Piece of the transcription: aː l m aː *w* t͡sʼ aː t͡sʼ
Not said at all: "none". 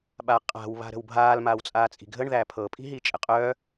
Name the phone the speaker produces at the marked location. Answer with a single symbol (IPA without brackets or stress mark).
w